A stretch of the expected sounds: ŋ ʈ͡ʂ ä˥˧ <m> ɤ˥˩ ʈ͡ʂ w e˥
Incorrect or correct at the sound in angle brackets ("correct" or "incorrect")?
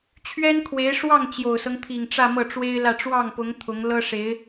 correct